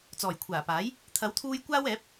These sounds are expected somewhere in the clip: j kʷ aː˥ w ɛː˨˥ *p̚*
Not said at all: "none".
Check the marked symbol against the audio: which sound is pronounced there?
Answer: p̚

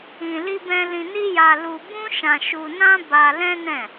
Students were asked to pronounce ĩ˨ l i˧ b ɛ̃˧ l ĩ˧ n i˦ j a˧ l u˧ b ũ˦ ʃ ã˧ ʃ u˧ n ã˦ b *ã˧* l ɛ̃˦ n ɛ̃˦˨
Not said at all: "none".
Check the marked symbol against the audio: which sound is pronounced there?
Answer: a˧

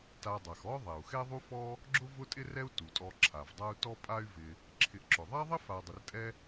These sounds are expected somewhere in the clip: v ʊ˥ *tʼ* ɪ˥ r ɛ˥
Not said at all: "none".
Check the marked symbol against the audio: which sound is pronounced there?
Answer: tʼ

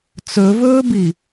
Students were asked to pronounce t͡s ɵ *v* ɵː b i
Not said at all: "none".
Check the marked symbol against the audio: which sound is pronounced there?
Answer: v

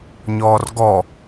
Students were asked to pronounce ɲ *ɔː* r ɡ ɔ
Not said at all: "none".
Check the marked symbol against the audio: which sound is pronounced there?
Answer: ɔː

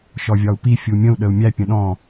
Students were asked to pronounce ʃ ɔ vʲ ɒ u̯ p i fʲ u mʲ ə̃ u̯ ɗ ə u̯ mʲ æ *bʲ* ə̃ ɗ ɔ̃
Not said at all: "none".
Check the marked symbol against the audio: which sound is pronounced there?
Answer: pʲ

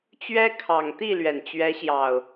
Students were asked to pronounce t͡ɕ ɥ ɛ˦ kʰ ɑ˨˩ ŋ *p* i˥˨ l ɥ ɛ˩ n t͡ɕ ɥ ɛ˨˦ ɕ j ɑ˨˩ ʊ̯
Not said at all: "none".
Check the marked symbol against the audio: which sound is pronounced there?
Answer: t̪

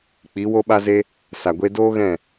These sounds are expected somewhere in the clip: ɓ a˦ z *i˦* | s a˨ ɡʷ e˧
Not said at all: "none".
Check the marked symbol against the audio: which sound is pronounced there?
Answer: e˦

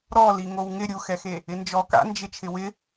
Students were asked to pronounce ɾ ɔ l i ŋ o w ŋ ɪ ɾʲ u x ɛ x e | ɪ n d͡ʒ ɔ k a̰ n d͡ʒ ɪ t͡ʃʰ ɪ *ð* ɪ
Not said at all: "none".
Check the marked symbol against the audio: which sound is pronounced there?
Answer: w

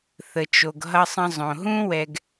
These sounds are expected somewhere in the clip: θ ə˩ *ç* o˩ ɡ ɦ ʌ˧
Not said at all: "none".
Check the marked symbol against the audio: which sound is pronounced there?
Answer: t͡ʃ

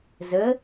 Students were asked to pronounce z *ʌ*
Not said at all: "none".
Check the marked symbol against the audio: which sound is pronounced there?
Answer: ə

